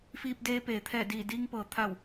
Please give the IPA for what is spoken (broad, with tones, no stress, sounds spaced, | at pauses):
f iː˧ p̚ d eː˧ p eː˩˧ t̪ʰ ɛː˧˩ d iː˧˩ d iː˧ ŋ p ɤː˩˧ t̪ʰ a˧˩ w